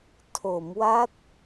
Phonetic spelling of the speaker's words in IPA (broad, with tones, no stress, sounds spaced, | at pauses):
tʰ o˩˦ m w a˦˥ t̚